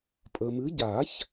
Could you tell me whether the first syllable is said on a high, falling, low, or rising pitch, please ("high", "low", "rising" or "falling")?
low